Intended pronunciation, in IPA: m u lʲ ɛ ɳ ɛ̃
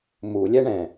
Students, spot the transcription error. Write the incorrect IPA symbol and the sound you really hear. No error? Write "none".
none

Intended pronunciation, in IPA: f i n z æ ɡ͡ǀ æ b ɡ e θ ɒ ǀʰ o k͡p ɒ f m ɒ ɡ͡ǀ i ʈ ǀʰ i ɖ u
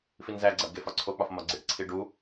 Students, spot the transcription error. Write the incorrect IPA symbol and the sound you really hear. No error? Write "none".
θ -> f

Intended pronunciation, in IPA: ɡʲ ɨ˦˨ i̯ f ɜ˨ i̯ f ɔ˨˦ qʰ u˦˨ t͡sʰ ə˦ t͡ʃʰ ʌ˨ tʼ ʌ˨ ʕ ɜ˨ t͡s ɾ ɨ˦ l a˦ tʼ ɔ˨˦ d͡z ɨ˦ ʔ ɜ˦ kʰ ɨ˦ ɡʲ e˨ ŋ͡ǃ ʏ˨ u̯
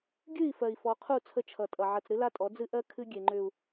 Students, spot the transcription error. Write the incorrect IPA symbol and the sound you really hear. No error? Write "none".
none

